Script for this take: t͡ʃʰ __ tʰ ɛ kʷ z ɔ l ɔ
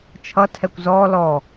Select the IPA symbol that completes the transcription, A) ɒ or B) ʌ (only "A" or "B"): B